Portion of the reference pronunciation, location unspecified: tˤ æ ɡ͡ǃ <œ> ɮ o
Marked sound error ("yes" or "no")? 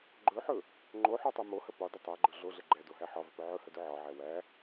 yes